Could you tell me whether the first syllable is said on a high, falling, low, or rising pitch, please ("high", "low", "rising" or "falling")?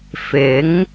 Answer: rising